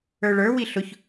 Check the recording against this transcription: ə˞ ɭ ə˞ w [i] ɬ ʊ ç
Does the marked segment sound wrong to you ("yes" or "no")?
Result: no